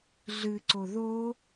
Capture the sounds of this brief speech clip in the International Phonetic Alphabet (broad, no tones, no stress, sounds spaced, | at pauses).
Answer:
ɮ ɨ ǀ o ð o